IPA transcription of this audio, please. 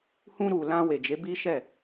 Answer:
h ũ˧ ɾ u˨ l ã˧ w e˨ d͡ʒ e˨˦ b i˦ ʃ ɛ˦˨

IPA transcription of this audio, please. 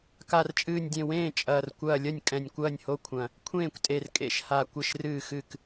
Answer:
k a˧˩ r t͡ʃʼ ɨː˧˩ nʲ dʲ ẽ˧˩ w ẽː˥˩ t͡ʃʼ ɐː˧˩ r kʷ ɐː˧˩ lʲ ɐ˥˩ nʲ kʼ ɛ̃˧˩ nʲ kʷ ɐː˥˩ nʲ h o˥˩ kʷʰ ɐ̃˧˩ | kʷʰ ẽː˥˩ kʷ tʼ e˧˩ r kʼ ḛ˧˩ ʃ h a˧˩ kʷ ɘ˥˩ ʃ r ɨː˥˩ x ɨ˥˩ k

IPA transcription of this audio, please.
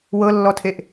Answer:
w ɤ lː ɔ tʰ e ʔ

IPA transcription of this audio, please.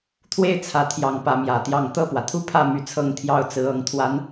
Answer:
t̪ʰ w e˥˩ ɪ̯ t͡sʰ ä˨˩ t̪ʰ j ɑ˧˥ ŋ p ä˧˥ m j ä˨˩ t̪ j ɑ˥˧ ŋ t̪ ɤ˥˩ p w ä˩ t̪ʰ u˥˧ pʰ ä˥˩ m y˧˥ t͡sʰ ɤ˥˧ ŋ t̪ʰ j ɑ˥˩ ʊ̯ t͡s ɹ̩˧˥ ɤ˧˥ ŋ t̪ʰ w a˧˥ n

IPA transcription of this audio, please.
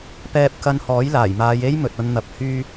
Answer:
p ɛː˧ p̚ k ɐ˧ n h ɔː˨˥ j l aː˨˩ j m aː˨˧ j e˥ j m ɵ˨ t̚ ɐ˧ n n̪ ɐ˨˥ p̚ h yː˧

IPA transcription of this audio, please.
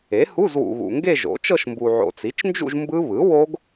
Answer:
e˩˥ h u˧˥˧ z w ṵ˨ ɣ ṵ˨ ŋ ɡ e˥˧ ʒ o̰˩˥ t͡ʃ ɤ˥˧ ʃ m b u˨ ʕ o̰˨ t͡s i˩˥ t͡ʃ n d͡ʒ ṵ˥˧ ʒ m b ɯ˦˥ β ɯ˩˥ w o˦˥ ɡ

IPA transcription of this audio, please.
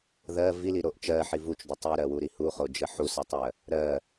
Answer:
ð ɜ v i l i ɾ o ʔ t͡ʃ ɜ ħ i v u t͡ʃ d u tˤ i ɾ ɜ w u ɾ i h u χ o d͡ʒ ɜ ħ u s ɜ tˤ ɜ | ɾ ɜ

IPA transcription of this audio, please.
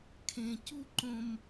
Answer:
kʰ ẽ˨ c u˦˨ ǃ õ˧ m

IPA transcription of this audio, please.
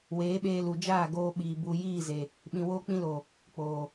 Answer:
w eː˨˦ ɓ eː˧ l u˨ d͡ʒ aː˦˨ ɡ oː˧ ɓ iː˨ b u˨ j iː˦˨ z e˨ | ɓ ĩ˨ w oː˧ k͡p ĩ˧ l oː˨ | k͡p oː˨

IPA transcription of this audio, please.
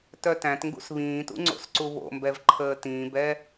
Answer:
t œ t æ̃ t ŋ ɡ ṵ s β ĩː t ṵ ŋ͡ǀ o̰ s ǀ u β o̰ m b ɛ v ǃʰ əː t ĩː b ɛ

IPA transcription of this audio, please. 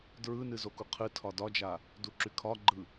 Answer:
d ɹ ɯ n ɨ z o k u qʰ ɨ tʰ ɒ d ɒ d͡ʒ a | d u ǁ y kʰ ɒ ɡ͡ǃ ɯ

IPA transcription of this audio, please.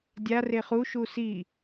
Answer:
dʲ a r e χ u ʃ u s i

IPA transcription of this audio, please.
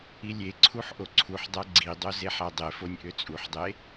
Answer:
i lʲ e ǀʰ u ħ ʔ o ǀʰ u ħ dˤ æ ɡ͡ǀ i dˤ o z e ħ æ dˤ e f o nʲ ʔ ø t͡sʼ u ħ dˤ e

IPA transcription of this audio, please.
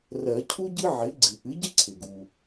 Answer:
r ɜ˨˩˦ cʰ u˥ ɟ ɨ˥ ʕ ɪ˩˥ ɡ͡ǀ ɨ˩ ʔ ɨ˩˥ ɟ ɪ˥ ǀʰ ɪ˩ ɡ u˩

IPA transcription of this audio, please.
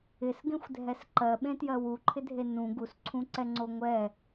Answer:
ɪ s ɡ ẽ xʷ dʱ ɛ s ǃ ɜ ɓ ẽ t j ɜ w u ǃʰ ɪ dʱ e n ũ ɡ u s ǀʰ ũ ǀ ɛ ŋ͡ǀ o ŋʷ ɛ

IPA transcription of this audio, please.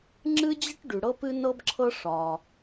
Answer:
ŋ͡ǁ ɨ˥ d͡ʑ ə˥ ʈ ɖ ʉ˩ ɽ ɤ˥ p ɨ˥ n ɤ˥ b ǁʰ ɤ˥ ʂ ɒ˩

